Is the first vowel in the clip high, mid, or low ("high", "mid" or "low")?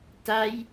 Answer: low